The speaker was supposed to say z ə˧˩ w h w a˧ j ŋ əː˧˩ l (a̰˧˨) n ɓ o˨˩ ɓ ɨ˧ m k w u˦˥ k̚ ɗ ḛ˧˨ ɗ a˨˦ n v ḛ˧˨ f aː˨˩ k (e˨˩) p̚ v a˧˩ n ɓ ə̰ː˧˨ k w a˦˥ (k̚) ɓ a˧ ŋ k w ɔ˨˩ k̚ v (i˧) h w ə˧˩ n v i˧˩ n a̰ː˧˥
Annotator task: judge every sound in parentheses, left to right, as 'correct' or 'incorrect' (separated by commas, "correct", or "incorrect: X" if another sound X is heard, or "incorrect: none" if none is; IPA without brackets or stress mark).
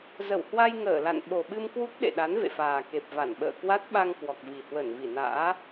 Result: correct, correct, incorrect: t̚, incorrect: i˨˩